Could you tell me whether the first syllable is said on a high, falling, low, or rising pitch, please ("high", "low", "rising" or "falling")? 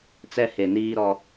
high